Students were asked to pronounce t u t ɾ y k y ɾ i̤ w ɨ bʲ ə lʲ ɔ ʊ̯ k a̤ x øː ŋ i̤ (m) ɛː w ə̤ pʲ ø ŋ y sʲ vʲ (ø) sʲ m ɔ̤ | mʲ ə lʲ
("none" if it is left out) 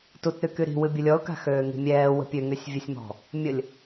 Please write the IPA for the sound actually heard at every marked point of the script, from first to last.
mʲ, ø

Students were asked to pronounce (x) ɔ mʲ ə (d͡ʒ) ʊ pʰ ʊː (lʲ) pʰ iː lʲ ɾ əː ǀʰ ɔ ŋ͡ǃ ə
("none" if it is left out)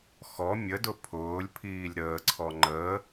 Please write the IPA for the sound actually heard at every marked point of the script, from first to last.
x, d, lʲ

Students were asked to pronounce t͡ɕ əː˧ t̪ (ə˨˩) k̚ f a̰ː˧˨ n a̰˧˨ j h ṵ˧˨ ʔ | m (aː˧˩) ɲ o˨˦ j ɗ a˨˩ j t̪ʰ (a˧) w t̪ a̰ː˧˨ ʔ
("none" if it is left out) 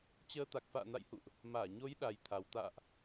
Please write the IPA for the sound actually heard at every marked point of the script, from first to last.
a˨˩, aː˧˩, a˨˩

